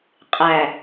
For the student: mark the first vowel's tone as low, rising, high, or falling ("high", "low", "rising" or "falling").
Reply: low